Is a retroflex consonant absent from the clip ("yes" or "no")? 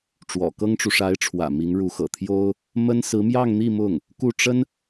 no